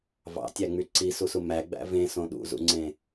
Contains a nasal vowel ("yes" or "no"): yes